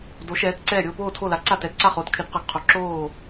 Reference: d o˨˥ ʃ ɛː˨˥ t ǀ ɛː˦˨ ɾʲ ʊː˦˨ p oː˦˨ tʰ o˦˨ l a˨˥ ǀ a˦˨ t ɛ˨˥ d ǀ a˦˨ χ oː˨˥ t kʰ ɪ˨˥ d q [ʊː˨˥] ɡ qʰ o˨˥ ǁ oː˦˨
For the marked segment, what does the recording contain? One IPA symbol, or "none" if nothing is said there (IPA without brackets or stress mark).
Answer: ʊ˨˥